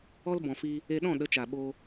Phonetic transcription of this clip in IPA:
ɔ˧ l b ɔ̃˨ f iː˧ | e˧ ɗ ɔ̃˦˨ ɗ ə˨˦ t͡ʃ a˨ ɓ oː˧

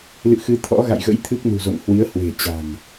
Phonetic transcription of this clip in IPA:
l ɨ̰˧˨ x ɨ˨˦ t̪ʰ ɔ̰˧˥ ɣ a̰˧˨ j ɣ ə̰˧˥ j t̪ʰ ɨ˦˥ k̚ n ṳ˨˩ z o̰˧˨ ŋ h w i˨˦ ə̯ h w e̤˨˩ t͡ɕ a̤˨˩ ŋ

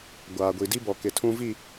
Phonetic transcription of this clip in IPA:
ɡʷ aː˨ ɡʷ i˨ d i˦ b ɔ˨ k ɪ˨ tʰ ũ˦ v i˦˨

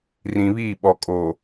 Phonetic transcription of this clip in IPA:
r ĩ˨ β iː˦˨ ɓ ɔ˨ kʼ oː˨

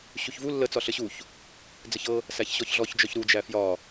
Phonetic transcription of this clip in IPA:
ɕ u ç v u lː ə t͡s ɒ ɬ ə ɕ u ç | d͡z ə ç ɤ | s æ ç ɕ ɔ ç ɮ ɔ ç d͡ʒ ɔ ç ɾ u d͡ʒ æ f j ɒ

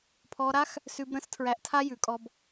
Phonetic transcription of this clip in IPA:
pʰ ɔ˧ ɾ a˦ x | s ʉ˧ b ɾ ə̃˦ s tʰ ɹ æ˧ ʔ tʰ a˦ j ʉ˨˦ kʼ ɔ˧ b

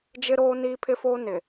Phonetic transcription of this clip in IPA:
d͡ʒ ɪ˦ ɾ oː˦ n iː˦ pʰ ɪ˦ f oː˦ n ɪ˨

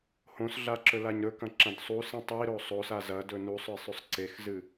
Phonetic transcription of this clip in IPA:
h õ s ɮ a ǁ ɵ l a ɲ ɾ ɵ k ɐ̃ ǁ ɐ̃ d sˤ u s ĩ tˤ i ɾ o sˤ o s a z ɐ d ɵ n u sˤ ɵ e̯ sˤ ʉ sˤ ǀ e x z ɨ

